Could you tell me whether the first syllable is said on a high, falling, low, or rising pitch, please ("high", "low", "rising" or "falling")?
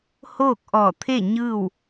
falling